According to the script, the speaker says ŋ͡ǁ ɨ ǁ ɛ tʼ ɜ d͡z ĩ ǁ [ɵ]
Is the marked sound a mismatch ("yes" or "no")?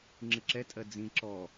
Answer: yes